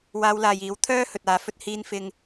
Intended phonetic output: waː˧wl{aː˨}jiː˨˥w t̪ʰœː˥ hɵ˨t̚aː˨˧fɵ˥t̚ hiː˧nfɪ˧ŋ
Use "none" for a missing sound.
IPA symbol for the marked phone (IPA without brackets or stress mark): aː˨